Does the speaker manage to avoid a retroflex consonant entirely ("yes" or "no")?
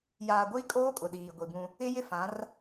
yes